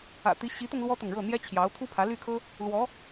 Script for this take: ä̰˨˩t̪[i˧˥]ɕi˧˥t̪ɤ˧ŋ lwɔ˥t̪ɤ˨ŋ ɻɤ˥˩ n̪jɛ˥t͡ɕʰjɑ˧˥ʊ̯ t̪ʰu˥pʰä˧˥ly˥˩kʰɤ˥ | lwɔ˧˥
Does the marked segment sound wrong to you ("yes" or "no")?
no